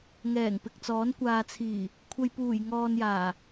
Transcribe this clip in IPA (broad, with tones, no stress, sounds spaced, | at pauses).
ŋ ɛː˨˩ ŋ p ɪ˨ k̚ t͡s ɔː˨˥ n kʷ aː˨ t͡sʰ iː˨˩ | kʷʰ ɐ˧ j p uː˨˩ j ŋ ɔː˧ n j aː˨˩